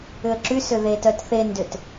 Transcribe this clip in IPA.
ʏ ə̯ ǁ y s ʏ ð e t œ t θ e n d ʏ t

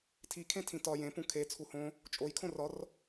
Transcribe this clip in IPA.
tʰ i kʰ ẽ tʰ ĩ t ɒ j ẽ p ũ kʰ e t͡sʰ u h õ | t͡ʃʼ o j kʰ õ r ɒ r

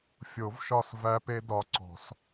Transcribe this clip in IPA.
fʲ o˨˩˦ v ʃ ɒ˦˨ s v æ˦˥ p e˦˥ d ɒ˨˦ ǀ ɔ̤˨˩˦ s

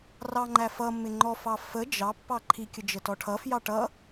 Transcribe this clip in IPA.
r ɑ ŋ͡ǃ æ f ʌ mː ɪ ŋ͡ǃ ɔ f ɑ f ə d͡ʒ ɑ pː ɑ ǃʰ i kʲ ə d͡ʒ ə t ɔ ʈʰ ʌ f j ɑ ʈ ʌ

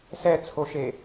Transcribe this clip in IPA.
s ɛ t͡sʰ o ʃ e

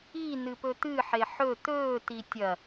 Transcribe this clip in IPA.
i n ɨ p ɵ t̪ ɨ ħ e ħ ɵ t̪ ɵː t i tʲ ɐ

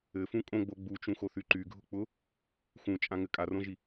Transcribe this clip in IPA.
ɘ f ũ kʼ õ ɡ͡b o ɡ͡b u t͡ʃ ũ x o θ y ǃ y ɡʱ ʊ k͡p ʊ | x ũ t͡ʃʼ ã ŋ ɘ kʼ a r õ ʒ i

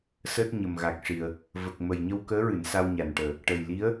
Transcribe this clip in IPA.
s əː˦˥ t̚ ɲ ə˨˩ m ɣ a˨˩ k̚ ʂ i˨˩ ə̯ | v ə˨˩ k̚ m ə˨˩ j ɲ ə˧ w k əː˧˥ ɹ ɨ˨˩˨ n s a˧ w ɲ a˨˩ n ʈ əː˨˩ | ʈ ə˨˩ j l i˧˥ ə̯

